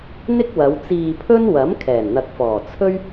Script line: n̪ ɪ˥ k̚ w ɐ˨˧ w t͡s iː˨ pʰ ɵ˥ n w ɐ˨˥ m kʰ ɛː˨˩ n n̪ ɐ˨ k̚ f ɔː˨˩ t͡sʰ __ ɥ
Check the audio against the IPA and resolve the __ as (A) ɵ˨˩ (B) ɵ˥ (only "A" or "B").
B